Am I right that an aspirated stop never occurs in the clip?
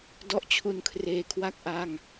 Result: no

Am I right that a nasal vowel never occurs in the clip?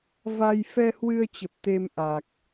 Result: yes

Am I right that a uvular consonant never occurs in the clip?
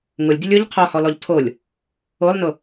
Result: no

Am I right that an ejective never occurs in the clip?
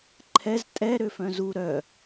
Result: no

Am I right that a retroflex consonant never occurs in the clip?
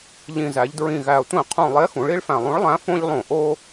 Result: no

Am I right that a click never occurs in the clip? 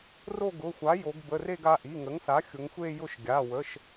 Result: yes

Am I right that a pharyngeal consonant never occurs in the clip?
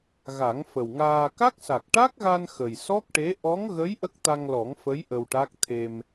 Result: yes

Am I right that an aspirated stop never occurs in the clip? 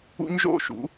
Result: yes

